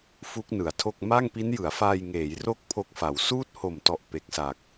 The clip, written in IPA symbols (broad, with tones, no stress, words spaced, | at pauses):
fu˦˥k̚nɯ˩˦a̯tʰo˥˩k̚ ma˥˩ŋpi˦˥njɯ˩˦a̯faː˧j ŋeː˩˦jro˦˥k̚ pʰo˦˥k̚fa˩˦w suː˥˩t̚ho˨˩mtɔ˨˩ʔ pe˨˩k̚sa˨˩k̚